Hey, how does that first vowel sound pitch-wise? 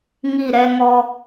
falling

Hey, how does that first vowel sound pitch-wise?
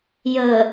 low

